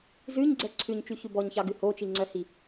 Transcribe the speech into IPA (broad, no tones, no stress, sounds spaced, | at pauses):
z ʉ ɲ ɡ͡ǀ ɛ ǀʰ ʉ ɲ t͡ʃ y ç ʉ b ɔ ɲ ç ɑ ɡ ʉ h o t͡ʃ i ŋ͡ǀ œ h i